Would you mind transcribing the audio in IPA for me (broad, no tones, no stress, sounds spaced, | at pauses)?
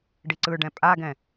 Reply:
ɖ i ǀ ɯ ɖ ɛ̃ pʼ a ɡ ɛ̃